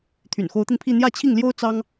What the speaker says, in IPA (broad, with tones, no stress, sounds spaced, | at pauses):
t̪ʰ y̰˨˩ n x o˧˥ ʊ̯ t̪ i˧ n pʰ i˥˧ n̪ j ä˥˧ t͡ɕʰ i˥˩ ŋ l j o˥ ʊ̯ t͡s ɑ˥ ŋ